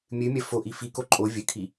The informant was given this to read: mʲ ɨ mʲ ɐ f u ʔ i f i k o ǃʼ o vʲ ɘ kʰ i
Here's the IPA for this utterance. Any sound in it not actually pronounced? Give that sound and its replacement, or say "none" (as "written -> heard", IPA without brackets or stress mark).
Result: u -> o